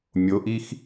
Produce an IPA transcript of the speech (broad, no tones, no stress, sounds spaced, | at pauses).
mʲ o ʔ i x